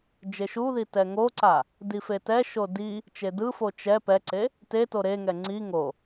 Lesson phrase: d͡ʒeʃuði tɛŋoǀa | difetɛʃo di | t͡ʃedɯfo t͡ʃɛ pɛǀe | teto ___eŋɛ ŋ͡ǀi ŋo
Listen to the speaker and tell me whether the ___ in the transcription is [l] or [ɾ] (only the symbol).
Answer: ɾ